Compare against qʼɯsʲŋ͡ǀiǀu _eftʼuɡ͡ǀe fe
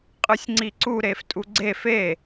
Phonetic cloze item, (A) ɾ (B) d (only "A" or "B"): A